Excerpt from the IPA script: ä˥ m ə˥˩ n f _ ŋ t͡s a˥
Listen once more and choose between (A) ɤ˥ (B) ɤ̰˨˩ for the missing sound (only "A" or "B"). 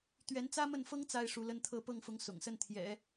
A